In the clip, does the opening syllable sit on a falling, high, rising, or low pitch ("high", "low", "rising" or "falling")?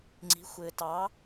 rising